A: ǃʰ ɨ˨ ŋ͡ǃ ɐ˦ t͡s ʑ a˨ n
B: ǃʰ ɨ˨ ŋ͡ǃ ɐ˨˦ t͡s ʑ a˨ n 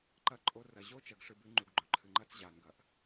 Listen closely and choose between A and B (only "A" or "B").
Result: A